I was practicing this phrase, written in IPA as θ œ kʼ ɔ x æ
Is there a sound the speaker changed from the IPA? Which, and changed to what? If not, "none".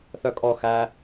none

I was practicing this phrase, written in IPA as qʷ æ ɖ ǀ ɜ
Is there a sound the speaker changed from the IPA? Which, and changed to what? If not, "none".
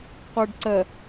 æ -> ɜ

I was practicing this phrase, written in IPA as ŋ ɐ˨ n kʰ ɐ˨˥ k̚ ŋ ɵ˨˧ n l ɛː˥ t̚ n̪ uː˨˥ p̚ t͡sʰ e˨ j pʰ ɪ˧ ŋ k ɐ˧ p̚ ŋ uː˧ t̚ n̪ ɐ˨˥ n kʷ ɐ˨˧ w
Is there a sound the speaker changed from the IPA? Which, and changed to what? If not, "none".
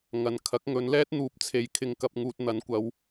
pʰ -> kʰ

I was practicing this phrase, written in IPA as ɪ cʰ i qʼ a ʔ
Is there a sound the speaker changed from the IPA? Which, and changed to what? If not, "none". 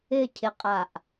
i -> ɪ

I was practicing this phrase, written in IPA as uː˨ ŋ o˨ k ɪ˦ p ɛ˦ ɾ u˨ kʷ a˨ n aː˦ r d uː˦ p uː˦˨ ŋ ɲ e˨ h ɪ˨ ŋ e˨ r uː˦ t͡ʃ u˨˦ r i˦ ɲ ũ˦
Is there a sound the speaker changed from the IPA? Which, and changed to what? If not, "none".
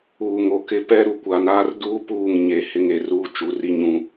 none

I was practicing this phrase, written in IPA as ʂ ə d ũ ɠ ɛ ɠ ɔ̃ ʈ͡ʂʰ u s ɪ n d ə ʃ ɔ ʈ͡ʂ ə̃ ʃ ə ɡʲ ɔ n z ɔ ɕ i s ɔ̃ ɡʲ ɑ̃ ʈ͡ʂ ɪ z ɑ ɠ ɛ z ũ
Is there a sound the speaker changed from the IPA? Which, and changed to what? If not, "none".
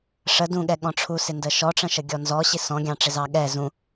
none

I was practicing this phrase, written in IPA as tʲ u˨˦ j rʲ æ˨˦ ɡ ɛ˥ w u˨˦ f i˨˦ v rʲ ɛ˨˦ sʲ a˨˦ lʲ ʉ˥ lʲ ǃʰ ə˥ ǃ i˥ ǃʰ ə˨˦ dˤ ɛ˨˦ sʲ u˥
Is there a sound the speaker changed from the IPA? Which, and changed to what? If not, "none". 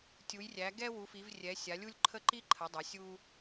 ʉ˥ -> u˥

